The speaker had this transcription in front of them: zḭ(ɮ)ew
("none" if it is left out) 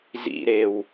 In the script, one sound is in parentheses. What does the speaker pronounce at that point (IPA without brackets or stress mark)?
ɾ